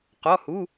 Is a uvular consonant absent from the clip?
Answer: no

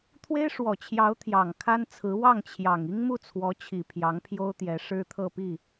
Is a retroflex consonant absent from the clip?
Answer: no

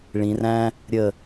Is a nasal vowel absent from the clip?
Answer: no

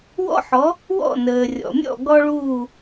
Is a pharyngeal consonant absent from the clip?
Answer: no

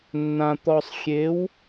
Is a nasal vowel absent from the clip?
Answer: no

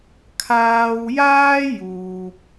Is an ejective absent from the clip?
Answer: yes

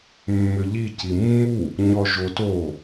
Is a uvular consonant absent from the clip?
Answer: yes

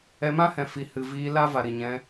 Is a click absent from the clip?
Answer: yes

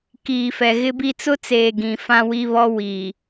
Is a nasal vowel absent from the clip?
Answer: no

